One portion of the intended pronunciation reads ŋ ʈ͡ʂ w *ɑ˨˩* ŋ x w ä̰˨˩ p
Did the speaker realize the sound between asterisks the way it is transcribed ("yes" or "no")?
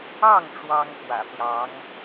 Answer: no